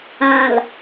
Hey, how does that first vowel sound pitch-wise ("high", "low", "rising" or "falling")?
low